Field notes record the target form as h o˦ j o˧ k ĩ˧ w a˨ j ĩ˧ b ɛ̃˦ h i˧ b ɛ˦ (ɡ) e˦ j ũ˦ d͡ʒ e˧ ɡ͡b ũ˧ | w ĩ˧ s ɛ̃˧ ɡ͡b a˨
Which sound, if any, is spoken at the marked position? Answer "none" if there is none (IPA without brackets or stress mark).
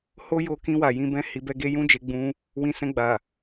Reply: ɡ